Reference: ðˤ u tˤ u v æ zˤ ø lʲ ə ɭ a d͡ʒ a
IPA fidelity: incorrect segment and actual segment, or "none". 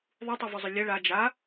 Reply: æ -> œ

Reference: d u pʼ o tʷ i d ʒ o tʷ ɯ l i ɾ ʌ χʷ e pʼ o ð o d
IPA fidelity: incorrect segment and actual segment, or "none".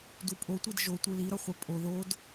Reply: none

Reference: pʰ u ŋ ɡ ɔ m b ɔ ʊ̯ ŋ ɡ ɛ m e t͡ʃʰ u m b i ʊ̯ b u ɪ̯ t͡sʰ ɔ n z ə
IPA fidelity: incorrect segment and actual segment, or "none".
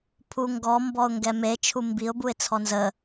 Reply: none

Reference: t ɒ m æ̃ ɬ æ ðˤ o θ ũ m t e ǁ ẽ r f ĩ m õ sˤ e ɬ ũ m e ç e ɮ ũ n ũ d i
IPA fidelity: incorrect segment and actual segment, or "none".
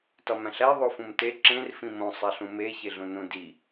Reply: θ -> f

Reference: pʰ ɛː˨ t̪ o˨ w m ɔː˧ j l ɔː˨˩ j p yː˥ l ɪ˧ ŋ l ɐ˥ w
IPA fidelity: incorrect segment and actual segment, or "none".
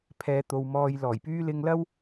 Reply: none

